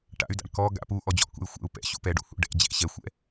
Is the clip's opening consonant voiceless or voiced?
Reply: voiceless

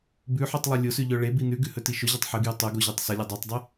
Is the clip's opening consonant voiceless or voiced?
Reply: voiced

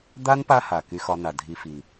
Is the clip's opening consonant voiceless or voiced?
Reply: voiced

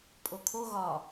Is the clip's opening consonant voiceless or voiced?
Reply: voiceless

